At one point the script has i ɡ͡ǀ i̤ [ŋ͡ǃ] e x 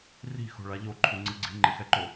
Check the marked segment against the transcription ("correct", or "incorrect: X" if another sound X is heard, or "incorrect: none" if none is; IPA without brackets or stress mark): correct